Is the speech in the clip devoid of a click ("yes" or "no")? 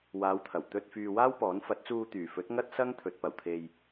yes